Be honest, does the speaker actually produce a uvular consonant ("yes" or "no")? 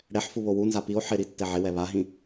no